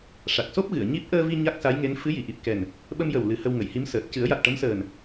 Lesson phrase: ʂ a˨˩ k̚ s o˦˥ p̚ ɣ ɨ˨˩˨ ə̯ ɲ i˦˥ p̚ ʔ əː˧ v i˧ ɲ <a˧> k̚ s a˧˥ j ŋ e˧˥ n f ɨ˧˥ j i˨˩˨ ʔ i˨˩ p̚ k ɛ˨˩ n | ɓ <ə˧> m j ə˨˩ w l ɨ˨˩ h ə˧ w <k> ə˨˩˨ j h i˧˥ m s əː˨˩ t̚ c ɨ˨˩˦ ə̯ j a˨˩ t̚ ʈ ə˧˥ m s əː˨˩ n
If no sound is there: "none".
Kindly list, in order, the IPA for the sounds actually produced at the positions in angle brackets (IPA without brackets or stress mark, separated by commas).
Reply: a˦˥, ə˧, ŋ